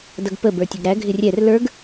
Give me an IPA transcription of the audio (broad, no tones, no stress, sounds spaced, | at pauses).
d ʌ ɡ p ə b ə˞ tʲ ə ɡ ɾ æ ɡʱ ɪ rʲ ɛ r l ə˞ ɡ